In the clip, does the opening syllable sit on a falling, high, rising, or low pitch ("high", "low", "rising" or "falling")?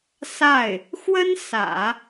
falling